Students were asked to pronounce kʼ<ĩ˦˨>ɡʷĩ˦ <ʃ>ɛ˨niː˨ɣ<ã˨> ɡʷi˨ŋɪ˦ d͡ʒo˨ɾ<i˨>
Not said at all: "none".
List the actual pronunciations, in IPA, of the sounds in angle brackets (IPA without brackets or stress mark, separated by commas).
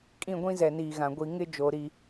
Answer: ĩ˦˨, z, ã˨, i˨